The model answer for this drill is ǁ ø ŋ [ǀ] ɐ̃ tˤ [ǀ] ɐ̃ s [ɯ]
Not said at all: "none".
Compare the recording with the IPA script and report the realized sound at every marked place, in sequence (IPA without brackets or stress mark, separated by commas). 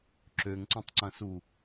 ǀ, ǀ, u